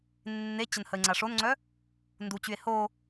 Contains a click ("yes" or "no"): yes